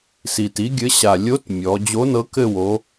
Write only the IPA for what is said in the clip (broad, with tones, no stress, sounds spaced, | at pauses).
s i˨˩ t i˨˥ ɡʲ ɘ˨˥ ɕ a˨˩ lʲ o˨˥ t mʲ ɔ˩˧ d͡ʑ o˨˥ n ɤ˨˥ k ɘ˦˨ w o˩˧